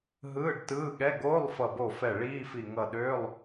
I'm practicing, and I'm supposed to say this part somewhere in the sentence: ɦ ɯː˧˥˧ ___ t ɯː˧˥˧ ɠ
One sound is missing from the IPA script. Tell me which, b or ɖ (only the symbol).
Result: ɖ